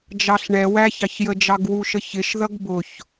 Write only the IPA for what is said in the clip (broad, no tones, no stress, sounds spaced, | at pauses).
d͡ʒ ɑ ɬ ɳ ɛ w æ ç ɑ ç j ə d͡ʒ ɑ ɡ w u ʃ ə ç ɪ ʃ ð ʌ ɡ b ʊ ç